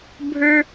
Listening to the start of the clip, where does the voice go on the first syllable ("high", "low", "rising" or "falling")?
high